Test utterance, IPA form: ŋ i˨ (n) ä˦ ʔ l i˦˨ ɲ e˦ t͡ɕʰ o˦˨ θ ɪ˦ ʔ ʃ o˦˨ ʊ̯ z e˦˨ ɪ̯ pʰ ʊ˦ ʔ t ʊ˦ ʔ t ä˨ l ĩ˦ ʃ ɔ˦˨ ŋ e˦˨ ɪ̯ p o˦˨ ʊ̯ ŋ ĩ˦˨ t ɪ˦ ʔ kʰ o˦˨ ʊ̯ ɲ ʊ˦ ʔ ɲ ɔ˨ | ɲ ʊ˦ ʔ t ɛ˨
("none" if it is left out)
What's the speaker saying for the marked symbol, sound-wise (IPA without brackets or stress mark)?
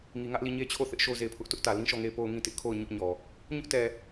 ŋ